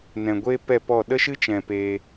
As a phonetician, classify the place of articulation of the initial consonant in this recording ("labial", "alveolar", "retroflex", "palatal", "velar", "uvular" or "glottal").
alveolar